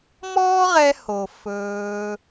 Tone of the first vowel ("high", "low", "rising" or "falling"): high